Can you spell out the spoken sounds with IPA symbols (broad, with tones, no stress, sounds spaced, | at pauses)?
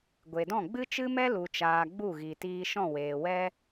ɡʷ e˨ d ɔ̃˦˨ ɡ͡b ɨ˦ t͡ʃ ɨ˦ m ɛ˦ l u˨ t͡ʃ aː˨ ɡ͡b u˦˨ ɣ i˨ t iː˧ ʃ ɔ̃˦˨ w eː˨ w ɛ˦